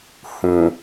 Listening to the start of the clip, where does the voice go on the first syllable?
low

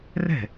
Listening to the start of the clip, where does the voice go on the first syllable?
falling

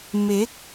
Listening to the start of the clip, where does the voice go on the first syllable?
rising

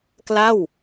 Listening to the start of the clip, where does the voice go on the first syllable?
falling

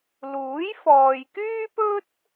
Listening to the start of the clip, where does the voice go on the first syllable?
rising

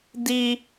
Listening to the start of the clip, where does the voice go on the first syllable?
high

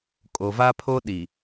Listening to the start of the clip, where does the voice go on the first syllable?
low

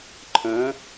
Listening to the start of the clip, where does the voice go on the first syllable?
rising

